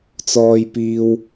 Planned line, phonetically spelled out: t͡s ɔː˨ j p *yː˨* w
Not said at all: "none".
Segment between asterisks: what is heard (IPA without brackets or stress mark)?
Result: iː˨